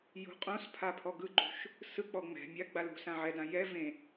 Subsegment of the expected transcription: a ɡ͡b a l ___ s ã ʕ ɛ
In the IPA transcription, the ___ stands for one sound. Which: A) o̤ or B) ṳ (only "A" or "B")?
B